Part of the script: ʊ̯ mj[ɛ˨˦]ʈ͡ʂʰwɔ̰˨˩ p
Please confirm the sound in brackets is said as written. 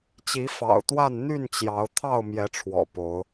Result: yes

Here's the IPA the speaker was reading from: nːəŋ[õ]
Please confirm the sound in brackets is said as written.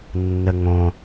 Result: yes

